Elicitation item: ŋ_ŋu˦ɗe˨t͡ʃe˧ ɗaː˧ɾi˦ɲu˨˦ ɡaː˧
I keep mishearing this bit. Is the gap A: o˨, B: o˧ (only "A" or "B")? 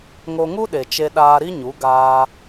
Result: B